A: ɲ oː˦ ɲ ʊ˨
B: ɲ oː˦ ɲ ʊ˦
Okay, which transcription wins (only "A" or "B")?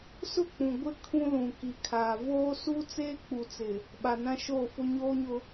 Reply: B